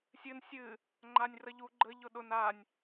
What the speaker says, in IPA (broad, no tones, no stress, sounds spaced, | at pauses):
sʲ ɨ n sʲ ɨ | ŋ͡ǃ a nʲ r ə ʎ u ɡ͡ǃ ə ʎ ʊ ɗ ʊ n a nʲ